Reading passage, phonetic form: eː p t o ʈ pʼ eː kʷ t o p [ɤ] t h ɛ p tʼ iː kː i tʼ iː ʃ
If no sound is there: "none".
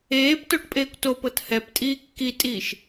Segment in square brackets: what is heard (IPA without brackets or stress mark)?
ɤ